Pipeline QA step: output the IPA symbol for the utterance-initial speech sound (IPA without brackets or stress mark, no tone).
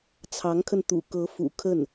t͡sʰ